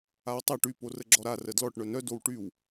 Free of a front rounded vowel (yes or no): no